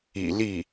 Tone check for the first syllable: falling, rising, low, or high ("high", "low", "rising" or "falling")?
low